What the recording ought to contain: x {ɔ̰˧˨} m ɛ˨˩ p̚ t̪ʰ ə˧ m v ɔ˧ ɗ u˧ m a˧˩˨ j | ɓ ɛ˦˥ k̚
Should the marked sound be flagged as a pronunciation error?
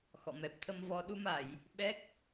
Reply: no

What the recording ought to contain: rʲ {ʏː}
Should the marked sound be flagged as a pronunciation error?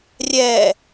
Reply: yes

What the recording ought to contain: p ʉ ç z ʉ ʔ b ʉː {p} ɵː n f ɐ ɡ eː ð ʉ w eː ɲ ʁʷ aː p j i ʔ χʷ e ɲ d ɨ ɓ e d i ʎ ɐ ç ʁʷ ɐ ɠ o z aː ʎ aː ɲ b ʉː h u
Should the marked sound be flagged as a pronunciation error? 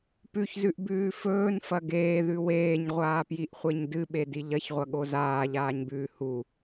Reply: yes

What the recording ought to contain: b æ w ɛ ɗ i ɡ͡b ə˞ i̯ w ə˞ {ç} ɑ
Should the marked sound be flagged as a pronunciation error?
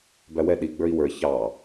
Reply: no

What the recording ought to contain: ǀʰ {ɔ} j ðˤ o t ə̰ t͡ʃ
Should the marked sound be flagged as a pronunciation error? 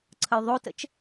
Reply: yes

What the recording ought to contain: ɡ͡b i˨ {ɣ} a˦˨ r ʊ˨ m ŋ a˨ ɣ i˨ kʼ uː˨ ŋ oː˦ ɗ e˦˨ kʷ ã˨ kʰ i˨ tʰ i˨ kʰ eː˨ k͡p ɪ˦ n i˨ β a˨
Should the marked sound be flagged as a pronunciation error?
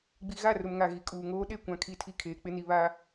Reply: no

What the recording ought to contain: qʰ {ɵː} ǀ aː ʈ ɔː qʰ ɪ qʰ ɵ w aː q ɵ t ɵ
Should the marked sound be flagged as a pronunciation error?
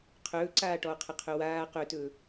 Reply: no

